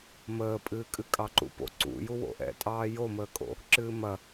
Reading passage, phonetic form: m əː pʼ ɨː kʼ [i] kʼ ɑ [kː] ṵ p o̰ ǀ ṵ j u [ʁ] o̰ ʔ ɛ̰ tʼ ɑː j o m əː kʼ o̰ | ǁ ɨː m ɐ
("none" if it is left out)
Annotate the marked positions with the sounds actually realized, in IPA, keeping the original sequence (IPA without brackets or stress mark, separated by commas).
ɨ, ǃ, w